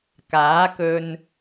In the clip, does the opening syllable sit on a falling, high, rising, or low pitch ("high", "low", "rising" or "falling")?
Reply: rising